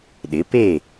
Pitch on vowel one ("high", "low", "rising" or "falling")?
rising